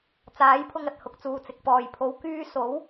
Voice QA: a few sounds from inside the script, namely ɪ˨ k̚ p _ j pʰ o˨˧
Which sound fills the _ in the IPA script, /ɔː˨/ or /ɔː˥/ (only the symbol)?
ɔː˨